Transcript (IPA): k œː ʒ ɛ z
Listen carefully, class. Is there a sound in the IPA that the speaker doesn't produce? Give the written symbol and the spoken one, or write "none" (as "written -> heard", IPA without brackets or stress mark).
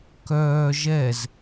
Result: none